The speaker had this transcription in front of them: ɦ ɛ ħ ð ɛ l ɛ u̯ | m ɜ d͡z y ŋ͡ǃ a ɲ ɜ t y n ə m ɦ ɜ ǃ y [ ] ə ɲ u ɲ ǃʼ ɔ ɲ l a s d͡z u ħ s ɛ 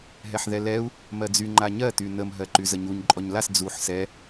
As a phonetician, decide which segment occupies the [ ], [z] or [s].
z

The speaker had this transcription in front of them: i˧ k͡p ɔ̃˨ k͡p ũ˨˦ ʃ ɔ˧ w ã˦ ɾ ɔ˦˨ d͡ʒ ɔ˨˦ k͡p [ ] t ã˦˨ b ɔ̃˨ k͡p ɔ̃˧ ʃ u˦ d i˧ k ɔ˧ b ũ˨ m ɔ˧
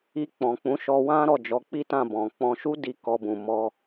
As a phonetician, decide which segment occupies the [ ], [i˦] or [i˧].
i˦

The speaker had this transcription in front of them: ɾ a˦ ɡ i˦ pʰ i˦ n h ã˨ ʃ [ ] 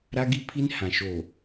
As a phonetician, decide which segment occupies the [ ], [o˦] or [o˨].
o˨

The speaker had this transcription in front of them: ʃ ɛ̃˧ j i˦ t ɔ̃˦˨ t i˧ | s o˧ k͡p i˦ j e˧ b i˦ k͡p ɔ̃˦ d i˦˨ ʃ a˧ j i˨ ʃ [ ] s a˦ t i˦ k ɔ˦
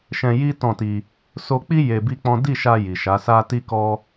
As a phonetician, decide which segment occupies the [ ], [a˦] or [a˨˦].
a˨˦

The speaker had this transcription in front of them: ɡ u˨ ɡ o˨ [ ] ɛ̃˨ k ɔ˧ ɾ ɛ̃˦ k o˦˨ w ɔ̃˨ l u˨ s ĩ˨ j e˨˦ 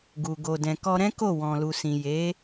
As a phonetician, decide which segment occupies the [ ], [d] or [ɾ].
d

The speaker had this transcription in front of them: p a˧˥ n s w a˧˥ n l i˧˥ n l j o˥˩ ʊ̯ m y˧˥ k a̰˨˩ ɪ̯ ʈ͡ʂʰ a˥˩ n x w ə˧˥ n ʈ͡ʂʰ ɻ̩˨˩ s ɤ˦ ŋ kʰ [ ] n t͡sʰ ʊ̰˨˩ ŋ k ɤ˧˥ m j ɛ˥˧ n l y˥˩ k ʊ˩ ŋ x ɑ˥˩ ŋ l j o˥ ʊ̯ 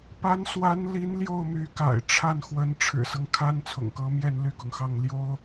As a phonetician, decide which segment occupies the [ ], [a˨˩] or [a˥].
a˥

